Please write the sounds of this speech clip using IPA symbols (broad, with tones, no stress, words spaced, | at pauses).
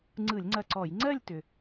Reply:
ŋ͡ǀɯ˧˩˧lʲŋ͡ǀɐ˧˩ǀɔ˧˩˧j ŋ͡ǀɜ˥˧lʲtʏ˩